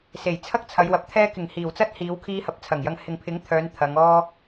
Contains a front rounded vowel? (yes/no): yes